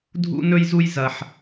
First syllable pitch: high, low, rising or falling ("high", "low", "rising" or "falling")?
high